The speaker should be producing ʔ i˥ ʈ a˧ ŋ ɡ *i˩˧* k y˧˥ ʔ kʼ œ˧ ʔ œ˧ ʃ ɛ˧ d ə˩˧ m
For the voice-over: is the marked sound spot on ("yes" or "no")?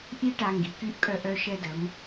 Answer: yes